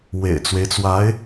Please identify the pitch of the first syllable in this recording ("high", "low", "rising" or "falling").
low